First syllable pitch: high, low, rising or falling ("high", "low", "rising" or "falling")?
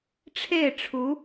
falling